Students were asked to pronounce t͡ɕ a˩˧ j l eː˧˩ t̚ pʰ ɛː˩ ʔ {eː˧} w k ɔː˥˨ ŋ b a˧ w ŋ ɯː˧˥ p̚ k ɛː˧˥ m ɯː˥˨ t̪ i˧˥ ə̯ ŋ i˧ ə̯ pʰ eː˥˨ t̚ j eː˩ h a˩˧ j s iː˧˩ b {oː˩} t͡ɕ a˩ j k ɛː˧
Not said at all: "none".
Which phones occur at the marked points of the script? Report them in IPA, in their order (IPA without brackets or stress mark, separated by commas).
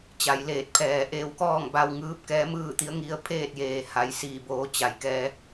eː˧, oː˩˧